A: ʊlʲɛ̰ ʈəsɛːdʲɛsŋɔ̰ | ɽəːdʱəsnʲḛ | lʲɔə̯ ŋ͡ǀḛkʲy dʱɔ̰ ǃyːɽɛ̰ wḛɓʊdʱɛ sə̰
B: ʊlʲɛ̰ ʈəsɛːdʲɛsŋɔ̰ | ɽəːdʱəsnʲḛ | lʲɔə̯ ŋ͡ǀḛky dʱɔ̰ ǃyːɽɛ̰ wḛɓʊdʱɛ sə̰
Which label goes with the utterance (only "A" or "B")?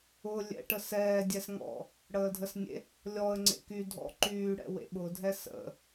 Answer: B